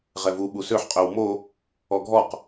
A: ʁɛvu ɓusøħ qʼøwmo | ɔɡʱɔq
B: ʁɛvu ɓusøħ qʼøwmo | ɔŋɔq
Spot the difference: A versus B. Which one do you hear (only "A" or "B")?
A